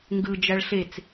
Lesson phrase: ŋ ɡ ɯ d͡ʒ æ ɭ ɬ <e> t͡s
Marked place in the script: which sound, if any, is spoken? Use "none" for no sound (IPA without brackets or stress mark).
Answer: e